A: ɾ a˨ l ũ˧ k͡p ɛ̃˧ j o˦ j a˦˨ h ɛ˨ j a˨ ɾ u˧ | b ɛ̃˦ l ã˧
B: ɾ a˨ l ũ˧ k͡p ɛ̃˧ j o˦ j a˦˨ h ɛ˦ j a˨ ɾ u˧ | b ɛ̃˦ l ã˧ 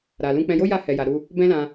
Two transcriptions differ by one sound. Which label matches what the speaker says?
A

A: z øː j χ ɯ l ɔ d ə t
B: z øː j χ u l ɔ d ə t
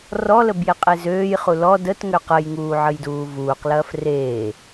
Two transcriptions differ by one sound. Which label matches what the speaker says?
B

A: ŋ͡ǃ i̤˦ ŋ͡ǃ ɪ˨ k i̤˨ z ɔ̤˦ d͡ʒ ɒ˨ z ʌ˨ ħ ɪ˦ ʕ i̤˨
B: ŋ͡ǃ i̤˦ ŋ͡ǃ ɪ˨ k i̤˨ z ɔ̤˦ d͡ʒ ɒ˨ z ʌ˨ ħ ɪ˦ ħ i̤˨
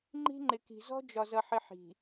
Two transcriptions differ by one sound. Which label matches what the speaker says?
B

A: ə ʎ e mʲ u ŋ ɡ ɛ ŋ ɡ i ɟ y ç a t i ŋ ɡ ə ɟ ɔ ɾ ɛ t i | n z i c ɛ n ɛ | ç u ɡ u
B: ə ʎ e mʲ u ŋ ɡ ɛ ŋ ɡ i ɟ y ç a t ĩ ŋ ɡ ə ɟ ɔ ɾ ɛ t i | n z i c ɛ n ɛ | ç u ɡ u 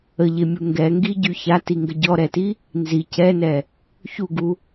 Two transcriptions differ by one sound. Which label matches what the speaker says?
A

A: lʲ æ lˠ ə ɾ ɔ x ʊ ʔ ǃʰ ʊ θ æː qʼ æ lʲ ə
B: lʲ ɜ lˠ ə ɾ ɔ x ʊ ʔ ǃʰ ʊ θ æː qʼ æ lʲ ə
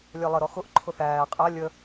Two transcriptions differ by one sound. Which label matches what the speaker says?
B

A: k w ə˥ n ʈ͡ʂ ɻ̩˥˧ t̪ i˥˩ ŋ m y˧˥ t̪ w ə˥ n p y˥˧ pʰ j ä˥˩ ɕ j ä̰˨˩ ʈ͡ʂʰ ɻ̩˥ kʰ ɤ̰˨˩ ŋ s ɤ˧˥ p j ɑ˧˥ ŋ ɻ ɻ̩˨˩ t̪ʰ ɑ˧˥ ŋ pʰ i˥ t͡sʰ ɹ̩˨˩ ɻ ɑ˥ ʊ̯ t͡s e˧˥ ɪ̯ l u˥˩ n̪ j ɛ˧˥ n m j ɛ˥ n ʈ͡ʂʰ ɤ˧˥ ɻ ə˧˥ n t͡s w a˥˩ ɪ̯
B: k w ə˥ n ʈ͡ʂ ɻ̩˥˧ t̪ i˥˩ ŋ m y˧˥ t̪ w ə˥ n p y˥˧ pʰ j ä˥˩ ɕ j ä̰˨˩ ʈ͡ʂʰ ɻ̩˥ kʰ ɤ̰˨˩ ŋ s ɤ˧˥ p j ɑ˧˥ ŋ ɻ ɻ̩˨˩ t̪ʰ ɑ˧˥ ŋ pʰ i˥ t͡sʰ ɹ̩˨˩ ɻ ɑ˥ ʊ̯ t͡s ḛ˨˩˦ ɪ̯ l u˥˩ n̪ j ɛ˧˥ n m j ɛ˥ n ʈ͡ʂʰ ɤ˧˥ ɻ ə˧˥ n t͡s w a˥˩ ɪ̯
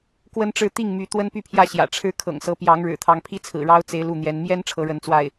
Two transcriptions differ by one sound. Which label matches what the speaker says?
A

